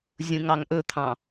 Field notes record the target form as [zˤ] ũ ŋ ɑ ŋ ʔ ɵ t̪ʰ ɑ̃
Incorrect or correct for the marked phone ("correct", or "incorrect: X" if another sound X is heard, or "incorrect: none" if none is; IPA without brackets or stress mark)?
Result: incorrect: zʲ